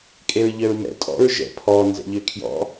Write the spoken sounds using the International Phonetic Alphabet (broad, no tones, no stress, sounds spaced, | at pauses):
kʼ e ɹ ʎ œ ɹ m ɛ̰ tʼ ɔ̰ ɹ ʒ ɛ̰ pʰ ɔ n z ɛ̰ ʎ ø kʰ j ɔ̰